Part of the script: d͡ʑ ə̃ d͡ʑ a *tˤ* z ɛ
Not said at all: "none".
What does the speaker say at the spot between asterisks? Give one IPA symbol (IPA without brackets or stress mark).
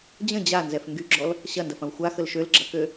n